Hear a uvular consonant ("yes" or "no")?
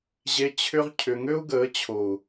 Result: yes